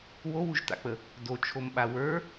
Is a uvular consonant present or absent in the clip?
absent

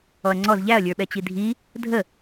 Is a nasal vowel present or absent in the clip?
absent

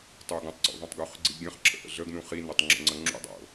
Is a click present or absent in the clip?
present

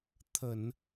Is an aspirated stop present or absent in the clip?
present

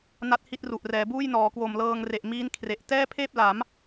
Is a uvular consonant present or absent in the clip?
absent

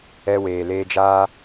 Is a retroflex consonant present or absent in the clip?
absent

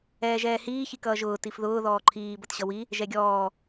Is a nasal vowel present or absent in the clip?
absent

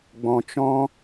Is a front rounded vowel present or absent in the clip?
absent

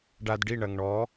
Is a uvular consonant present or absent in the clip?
absent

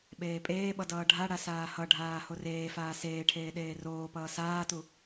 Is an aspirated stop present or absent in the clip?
present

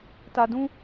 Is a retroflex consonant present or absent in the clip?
absent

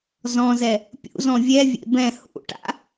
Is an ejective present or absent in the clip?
absent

